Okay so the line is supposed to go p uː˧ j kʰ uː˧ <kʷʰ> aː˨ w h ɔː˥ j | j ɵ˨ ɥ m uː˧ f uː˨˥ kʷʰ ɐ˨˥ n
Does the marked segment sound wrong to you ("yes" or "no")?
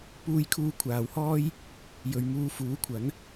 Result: no